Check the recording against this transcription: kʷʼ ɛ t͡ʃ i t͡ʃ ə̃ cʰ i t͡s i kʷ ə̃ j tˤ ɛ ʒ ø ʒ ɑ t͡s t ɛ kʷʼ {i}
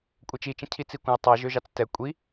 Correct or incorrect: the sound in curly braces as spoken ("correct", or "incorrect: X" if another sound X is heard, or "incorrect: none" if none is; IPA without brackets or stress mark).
correct